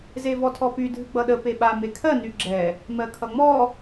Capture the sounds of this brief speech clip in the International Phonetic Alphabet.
zevɔtʰɔpy dʱɨɡ͡bʌɗə peɓa mekʰɜ nyɡ͡ǁɛ | mɜkʰʌŋ͡mɔ

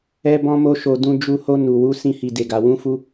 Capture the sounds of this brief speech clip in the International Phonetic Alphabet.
ɛ˦bɔ̃˦mo˦ʃo˧ dũ˧ d͡ʒu˧ho˧ nu˨ wu˨˦ sĩ˧hi˨ de˨ɡa˨ wũ˧fu˧

